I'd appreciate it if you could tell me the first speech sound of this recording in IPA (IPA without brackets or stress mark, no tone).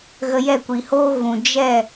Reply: ɣ